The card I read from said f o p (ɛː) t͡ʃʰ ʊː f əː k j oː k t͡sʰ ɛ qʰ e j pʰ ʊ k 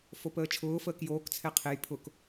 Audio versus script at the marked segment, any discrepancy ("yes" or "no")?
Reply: yes